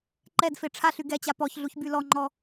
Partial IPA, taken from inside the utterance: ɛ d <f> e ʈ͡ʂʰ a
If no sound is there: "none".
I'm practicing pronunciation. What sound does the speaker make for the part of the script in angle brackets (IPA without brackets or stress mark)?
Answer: f